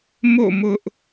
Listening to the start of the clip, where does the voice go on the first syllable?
falling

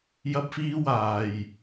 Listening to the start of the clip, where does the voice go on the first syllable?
high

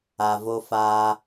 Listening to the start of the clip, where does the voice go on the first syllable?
low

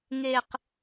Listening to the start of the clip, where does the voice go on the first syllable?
high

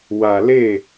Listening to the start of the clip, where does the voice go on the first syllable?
low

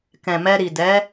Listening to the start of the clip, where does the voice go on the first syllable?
low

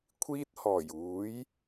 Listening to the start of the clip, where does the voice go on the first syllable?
high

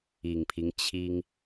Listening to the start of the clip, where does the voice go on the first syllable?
low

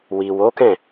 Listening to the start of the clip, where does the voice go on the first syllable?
low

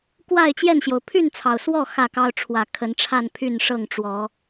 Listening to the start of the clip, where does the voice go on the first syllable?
falling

